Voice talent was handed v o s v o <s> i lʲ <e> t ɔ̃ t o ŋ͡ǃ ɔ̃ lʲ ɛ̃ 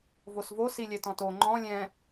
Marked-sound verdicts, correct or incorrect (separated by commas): correct, incorrect